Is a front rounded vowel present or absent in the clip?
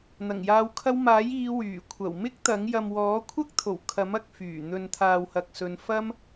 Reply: present